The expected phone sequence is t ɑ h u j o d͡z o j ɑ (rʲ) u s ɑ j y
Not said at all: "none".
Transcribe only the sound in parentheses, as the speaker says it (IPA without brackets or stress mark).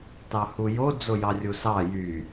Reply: rʲ